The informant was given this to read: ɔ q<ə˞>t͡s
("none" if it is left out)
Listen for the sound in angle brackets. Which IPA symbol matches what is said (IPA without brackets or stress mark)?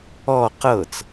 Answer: ɤ